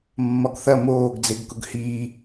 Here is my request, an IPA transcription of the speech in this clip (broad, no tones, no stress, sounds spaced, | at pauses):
mː ɒ ɡ θ ɐ m oː ɡ d͡z e ɡ k ʊ ɡ h iː